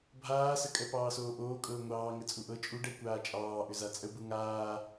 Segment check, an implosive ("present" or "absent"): absent